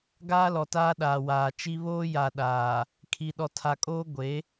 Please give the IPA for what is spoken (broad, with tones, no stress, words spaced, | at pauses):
ɡaː˦lɔ˨taː˦ɗaː˨ waː˨t͡ʃi˦ βoː˦ja˨ɗaː˨ | kʰi˨ɗɔ˨tʰa˨kʼoː˦ ɡʷe˨˦